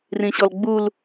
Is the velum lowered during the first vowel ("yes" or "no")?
yes